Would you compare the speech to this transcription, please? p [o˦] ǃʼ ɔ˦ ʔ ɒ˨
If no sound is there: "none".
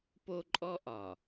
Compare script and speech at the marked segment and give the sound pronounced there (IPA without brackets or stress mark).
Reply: o˦